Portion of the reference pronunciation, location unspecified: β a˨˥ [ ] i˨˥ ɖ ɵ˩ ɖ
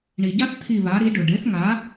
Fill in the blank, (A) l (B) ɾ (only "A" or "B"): B